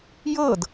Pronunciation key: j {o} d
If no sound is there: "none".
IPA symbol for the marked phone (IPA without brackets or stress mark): ɤ